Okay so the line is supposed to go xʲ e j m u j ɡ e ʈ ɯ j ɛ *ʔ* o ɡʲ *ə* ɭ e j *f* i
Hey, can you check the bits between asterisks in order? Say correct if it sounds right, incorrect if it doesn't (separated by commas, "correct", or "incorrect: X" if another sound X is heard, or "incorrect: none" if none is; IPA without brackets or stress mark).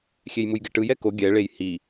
incorrect: k, incorrect: ɛ, incorrect: h